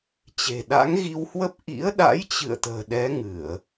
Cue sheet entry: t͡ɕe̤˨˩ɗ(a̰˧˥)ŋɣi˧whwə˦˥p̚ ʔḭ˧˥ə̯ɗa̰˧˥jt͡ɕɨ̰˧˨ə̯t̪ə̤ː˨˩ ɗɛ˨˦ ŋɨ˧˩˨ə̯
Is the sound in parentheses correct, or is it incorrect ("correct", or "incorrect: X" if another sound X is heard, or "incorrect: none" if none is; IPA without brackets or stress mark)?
correct